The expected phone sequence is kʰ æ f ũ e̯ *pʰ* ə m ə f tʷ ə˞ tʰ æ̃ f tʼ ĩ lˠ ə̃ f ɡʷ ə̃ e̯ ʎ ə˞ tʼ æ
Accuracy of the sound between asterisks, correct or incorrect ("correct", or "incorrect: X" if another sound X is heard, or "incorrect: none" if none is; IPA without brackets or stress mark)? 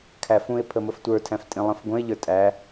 correct